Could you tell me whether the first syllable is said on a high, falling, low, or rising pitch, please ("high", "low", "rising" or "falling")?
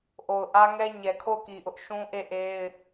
low